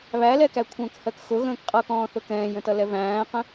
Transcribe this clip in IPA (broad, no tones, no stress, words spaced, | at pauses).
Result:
βælɛkæ kʷʰə̃ːkhɜkxʊ ɣə̃ːkqʼʌkɔ̃ːθʊ kɛ̃ːjə̃tʌlɛ væ̃ːqə̃